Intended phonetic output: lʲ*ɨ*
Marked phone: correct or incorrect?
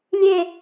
incorrect